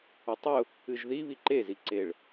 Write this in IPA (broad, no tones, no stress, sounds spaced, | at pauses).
ʊ tˤ ʊ | ɨ ʒ ð i β i ǃ e z i ǀ e ɭ